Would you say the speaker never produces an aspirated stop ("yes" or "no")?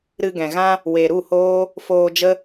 yes